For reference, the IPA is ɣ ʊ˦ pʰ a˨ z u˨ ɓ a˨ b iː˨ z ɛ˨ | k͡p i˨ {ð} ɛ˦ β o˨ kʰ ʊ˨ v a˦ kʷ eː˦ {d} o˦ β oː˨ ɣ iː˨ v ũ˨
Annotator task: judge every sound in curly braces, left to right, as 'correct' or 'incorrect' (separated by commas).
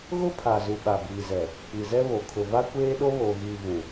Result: incorrect, incorrect